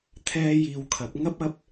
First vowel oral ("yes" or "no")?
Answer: yes